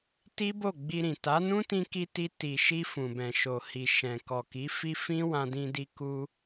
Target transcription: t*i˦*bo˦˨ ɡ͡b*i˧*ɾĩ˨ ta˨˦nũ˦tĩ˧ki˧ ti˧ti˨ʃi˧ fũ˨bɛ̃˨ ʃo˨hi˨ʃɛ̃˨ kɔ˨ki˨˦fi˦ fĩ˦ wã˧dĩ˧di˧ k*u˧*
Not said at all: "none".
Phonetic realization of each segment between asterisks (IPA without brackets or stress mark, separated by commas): i˦, i˧, u˧